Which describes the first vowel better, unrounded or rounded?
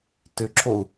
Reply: rounded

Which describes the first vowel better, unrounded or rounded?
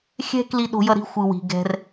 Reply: unrounded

